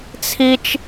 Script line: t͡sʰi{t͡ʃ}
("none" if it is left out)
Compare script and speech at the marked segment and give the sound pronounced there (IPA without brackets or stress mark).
t͡ʃ